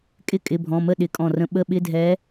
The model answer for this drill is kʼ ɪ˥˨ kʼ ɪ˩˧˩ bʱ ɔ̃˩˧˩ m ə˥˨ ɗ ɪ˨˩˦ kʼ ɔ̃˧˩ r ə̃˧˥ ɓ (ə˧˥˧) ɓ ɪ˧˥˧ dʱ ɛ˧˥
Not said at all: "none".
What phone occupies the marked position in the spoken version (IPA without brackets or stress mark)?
ə˧˥˧